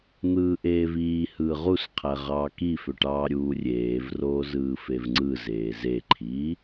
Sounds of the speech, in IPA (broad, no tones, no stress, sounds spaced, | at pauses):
n̪ ɯː ʔ eː v iː h ɯː ʁ u s qʰ æ ʁ ɑː k i f ø ʈ ɑː ɾʲ uː rʲ eː v r oː z ɯː f e v ŋ͡ǀ ɯ z eː z e ǃʰ iː